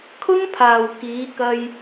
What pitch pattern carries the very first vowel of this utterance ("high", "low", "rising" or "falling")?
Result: high